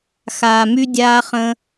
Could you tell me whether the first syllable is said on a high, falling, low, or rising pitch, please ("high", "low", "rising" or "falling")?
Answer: low